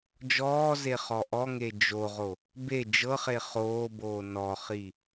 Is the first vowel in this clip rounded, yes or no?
yes